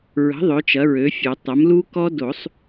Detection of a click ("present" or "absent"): absent